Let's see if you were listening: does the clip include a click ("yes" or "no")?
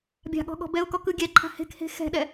yes